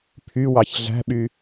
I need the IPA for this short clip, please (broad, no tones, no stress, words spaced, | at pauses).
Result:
pʰywɑç ɮæ̤ɓy